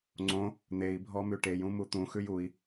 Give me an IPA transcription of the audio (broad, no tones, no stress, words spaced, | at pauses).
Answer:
ŋ͡ǀõ | n̪ei̯bʱɔmʉ ʈejũmu t̪ũxʉj ui̯